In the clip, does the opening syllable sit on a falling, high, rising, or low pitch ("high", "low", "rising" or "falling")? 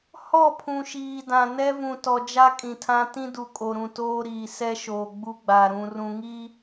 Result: falling